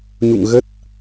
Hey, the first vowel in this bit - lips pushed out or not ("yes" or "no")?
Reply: yes